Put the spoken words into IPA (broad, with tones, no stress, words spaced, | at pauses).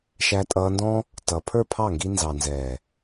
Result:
ʃæ˧tʼʌː˧ndɔ̃˦ | tʌ˨ pʰə˞˦˨pʰɑ˦˨ŋɡi˧ nzɑ˨nzɛː˨